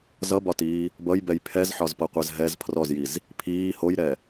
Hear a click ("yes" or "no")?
no